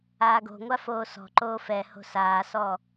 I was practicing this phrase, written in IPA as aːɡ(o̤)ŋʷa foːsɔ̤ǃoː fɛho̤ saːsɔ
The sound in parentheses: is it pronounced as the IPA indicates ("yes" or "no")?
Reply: yes